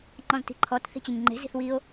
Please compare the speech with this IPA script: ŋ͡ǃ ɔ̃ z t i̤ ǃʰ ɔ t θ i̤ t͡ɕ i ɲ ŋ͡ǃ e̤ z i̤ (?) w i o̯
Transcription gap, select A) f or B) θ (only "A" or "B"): B